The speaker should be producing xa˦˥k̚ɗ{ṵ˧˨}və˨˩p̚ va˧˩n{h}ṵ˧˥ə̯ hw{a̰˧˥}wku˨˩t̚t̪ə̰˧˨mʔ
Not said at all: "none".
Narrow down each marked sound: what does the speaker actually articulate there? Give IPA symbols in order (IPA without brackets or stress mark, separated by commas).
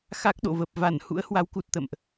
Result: o̰˧˨, h, a˨˦